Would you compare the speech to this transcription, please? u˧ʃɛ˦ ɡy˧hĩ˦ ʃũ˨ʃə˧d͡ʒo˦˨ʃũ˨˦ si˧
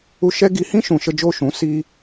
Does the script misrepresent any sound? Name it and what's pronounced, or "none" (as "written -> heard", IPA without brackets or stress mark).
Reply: y˧ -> i˧